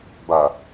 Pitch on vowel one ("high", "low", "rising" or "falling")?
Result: low